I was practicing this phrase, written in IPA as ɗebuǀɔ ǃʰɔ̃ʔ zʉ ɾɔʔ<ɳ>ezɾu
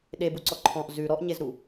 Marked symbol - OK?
no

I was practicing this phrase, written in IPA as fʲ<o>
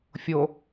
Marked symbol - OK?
yes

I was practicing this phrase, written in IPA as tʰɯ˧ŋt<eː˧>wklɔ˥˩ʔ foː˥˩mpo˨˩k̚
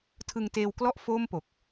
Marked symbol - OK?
yes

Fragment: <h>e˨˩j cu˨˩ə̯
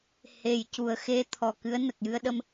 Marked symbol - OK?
yes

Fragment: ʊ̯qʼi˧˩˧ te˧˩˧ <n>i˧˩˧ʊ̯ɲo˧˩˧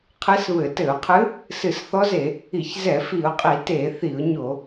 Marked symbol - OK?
no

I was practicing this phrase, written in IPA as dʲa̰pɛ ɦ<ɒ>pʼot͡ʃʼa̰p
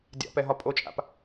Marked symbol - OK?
yes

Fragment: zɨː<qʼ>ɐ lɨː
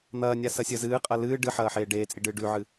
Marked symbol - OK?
yes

